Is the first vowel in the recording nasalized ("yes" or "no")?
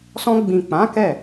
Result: yes